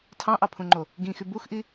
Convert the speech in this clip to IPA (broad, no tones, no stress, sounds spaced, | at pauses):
tʰ ɑ̃ ʔ ɑ pʰ ũ ŋ͡ǃ o | ɡ ĩ x y b u x ʔ i